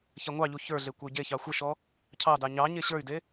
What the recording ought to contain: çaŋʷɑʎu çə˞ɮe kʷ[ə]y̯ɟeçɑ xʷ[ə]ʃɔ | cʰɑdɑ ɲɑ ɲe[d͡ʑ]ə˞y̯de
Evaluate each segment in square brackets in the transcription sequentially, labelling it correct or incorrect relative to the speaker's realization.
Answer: correct, correct, incorrect: ɕ

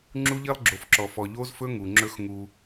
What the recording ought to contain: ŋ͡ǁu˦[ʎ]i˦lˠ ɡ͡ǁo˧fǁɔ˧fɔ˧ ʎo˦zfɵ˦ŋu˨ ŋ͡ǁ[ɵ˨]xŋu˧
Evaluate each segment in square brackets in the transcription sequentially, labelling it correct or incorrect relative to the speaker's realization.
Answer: correct, incorrect: ɵ˦

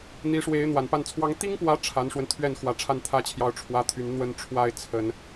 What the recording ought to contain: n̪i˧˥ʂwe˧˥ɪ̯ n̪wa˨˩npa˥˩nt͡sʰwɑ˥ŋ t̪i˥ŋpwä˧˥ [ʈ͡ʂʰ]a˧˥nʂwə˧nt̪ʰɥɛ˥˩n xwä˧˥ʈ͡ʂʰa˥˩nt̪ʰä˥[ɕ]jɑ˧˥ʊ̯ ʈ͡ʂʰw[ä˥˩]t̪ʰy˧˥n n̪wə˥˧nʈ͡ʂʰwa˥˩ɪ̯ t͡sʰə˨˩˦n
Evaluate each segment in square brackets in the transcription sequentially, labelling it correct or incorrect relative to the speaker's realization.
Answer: correct, incorrect: t͡ɕʰ, incorrect: ä˥

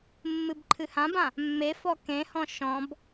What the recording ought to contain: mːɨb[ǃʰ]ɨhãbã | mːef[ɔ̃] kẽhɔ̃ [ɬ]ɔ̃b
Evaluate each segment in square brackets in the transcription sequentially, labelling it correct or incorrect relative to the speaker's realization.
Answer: correct, incorrect: ɔ, incorrect: ʃ

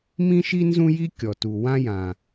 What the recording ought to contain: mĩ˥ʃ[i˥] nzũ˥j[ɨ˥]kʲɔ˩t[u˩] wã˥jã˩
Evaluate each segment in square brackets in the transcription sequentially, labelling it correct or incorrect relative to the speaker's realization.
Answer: correct, incorrect: i˥, correct

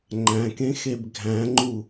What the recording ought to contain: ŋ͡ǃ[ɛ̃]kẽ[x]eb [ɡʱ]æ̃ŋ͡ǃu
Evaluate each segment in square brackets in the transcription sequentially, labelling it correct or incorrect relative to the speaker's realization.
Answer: incorrect: æ̃, correct, correct

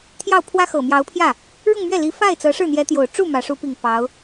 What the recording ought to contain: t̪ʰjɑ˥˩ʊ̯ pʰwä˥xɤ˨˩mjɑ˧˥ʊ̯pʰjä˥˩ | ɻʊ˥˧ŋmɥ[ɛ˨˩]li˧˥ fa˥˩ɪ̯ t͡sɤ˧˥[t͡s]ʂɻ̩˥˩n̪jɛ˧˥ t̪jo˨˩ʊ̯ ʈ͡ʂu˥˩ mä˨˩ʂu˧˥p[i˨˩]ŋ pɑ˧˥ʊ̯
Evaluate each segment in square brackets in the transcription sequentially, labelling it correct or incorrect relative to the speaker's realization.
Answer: incorrect: ɛ˥˩, incorrect: none, correct

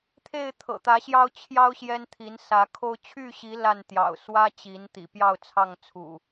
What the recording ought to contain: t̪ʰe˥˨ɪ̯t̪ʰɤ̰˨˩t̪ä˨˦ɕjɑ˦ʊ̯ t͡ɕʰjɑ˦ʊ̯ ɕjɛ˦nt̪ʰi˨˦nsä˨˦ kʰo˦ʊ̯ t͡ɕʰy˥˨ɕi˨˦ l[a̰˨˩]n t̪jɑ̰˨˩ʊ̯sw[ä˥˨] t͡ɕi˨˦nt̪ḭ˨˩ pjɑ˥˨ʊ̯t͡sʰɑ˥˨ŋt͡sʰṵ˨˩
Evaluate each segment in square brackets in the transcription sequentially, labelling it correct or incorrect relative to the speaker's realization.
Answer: incorrect: a˥˨, incorrect: ä˦

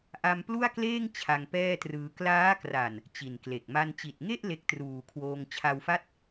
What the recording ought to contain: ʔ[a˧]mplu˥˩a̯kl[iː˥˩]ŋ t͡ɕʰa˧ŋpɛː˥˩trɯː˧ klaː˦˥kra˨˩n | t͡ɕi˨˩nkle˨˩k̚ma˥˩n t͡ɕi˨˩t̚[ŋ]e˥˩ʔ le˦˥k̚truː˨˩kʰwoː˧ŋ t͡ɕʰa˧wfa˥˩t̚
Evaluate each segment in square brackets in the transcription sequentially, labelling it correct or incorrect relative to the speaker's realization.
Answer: correct, incorrect: eː˥˩, correct

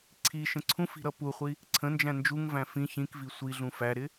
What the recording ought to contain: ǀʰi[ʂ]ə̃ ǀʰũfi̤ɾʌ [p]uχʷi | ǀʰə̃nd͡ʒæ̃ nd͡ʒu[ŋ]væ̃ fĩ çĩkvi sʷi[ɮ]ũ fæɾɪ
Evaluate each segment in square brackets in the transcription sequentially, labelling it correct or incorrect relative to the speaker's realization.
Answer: incorrect: ʃ, correct, correct, correct

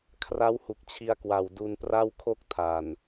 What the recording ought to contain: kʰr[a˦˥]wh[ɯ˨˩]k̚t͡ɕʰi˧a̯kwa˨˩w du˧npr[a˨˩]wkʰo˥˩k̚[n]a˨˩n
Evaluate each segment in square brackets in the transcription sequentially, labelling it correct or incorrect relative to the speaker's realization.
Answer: correct, incorrect: u˨˩, incorrect: a˥˩, incorrect: tʰ

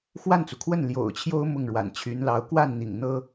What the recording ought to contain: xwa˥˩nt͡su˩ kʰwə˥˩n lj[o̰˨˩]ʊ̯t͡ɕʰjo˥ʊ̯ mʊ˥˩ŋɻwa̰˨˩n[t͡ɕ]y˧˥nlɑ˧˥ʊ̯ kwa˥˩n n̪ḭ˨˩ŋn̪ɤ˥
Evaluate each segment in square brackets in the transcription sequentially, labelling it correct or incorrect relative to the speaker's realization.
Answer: correct, incorrect: t͡ɕʰ

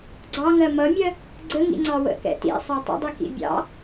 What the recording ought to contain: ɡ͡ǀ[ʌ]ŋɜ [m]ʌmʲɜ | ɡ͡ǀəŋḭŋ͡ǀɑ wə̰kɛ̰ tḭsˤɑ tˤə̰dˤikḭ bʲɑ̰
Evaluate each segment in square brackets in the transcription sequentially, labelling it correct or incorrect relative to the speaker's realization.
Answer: incorrect: ɑ, correct

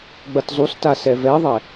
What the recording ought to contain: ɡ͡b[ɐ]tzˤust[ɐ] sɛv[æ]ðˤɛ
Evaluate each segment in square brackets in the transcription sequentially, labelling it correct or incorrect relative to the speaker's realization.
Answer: correct, incorrect: a, incorrect: ɛ

